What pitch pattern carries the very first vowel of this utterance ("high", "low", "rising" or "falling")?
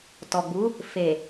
low